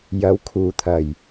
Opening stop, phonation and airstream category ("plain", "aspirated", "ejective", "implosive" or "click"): aspirated